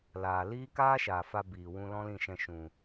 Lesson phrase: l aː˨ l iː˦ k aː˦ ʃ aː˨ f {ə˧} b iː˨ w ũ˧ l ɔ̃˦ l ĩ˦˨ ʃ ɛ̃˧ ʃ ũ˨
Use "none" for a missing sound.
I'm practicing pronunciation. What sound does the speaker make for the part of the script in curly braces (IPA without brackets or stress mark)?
a˧